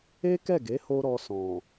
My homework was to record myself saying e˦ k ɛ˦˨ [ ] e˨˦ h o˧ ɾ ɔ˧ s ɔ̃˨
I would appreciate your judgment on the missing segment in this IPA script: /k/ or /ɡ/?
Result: ɡ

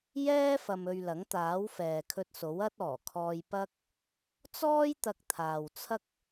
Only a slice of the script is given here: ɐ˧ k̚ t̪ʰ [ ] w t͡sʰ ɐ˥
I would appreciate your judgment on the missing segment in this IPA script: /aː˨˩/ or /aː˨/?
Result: aː˨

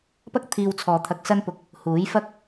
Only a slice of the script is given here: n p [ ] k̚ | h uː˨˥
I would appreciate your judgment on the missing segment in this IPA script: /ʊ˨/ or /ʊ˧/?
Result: ʊ˨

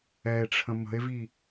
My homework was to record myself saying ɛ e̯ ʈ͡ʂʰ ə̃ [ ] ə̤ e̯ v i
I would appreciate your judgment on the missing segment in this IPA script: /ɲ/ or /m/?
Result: m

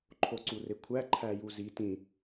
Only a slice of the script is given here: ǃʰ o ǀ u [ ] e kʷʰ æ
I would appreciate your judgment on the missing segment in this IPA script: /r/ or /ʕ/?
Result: r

